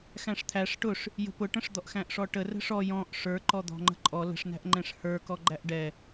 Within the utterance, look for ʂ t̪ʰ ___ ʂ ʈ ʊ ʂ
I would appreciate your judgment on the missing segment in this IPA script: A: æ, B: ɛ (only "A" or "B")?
A